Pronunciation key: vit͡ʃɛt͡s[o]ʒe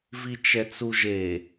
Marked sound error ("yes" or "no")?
yes